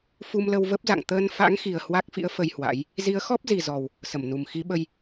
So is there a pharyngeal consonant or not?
no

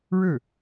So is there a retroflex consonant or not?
yes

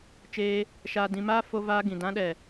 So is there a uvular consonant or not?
no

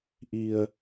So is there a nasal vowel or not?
no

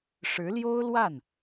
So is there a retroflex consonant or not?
yes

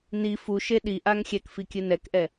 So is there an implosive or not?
yes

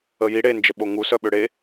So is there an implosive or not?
yes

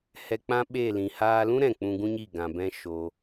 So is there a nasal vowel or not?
yes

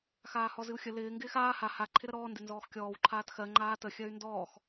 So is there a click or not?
yes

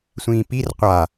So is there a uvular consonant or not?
yes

